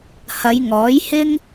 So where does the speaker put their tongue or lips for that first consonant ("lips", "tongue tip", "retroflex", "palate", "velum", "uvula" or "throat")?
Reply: throat